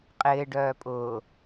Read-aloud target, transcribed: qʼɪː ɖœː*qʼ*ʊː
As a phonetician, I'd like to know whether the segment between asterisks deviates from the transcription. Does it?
yes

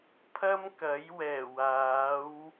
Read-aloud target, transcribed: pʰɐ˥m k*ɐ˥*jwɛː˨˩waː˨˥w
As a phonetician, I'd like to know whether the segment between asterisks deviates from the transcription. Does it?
yes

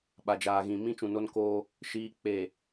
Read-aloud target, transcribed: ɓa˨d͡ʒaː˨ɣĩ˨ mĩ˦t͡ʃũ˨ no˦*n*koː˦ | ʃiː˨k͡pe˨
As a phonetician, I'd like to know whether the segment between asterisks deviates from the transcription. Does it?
no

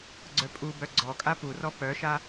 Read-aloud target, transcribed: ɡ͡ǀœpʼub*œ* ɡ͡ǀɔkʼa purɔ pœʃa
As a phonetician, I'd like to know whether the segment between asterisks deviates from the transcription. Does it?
no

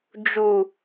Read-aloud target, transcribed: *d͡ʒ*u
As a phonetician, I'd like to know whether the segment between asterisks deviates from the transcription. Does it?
no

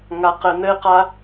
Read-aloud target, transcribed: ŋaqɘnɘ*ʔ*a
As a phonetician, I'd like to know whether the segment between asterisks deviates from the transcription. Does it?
yes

